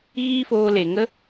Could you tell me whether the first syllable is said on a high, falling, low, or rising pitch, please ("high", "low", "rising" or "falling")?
high